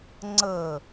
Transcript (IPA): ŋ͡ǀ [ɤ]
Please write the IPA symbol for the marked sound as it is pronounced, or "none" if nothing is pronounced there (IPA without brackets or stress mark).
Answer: ɤ